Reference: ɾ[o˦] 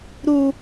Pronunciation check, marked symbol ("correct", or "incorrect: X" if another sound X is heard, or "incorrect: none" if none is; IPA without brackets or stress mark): incorrect: u˦